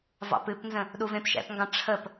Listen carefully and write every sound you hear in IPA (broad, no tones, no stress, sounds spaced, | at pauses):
v ɑ̰ p ɨ p n z ə̃ | ɗ u v ẽ p ʃ ɛ̰ p ŋ ɡ ɑ̃ ʈ͡ʂʰ ə p